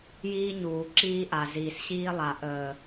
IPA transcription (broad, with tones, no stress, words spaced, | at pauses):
jiː˦ɲuː˨ ǁiː˦ʔa˨ ziː˨sɕiː˦lˠa˨ ʔəː˨